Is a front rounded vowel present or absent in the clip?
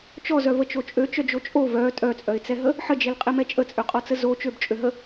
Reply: present